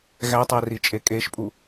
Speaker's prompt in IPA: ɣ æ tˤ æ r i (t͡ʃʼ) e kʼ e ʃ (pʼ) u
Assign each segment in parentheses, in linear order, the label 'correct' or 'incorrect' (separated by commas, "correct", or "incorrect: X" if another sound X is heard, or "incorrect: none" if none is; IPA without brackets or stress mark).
correct, correct